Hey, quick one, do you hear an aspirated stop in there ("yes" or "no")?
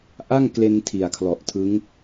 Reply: yes